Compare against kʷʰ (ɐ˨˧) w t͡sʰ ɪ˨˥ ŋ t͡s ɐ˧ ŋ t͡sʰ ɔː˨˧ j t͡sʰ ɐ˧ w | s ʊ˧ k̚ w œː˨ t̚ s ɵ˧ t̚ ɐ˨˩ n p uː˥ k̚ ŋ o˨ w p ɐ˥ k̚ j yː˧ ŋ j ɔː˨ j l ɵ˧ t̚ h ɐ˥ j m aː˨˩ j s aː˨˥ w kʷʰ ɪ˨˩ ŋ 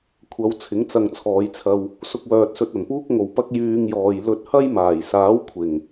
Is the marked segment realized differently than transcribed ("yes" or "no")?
no